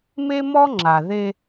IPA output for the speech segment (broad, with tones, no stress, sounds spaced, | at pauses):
m e˦ m ɔ˦ ŋ͡ǁ a˨ ð e˦